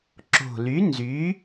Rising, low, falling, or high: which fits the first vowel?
low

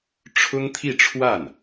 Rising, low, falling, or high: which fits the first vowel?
high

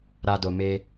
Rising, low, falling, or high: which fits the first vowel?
low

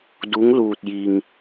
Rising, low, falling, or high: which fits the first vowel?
rising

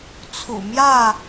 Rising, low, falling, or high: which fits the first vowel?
low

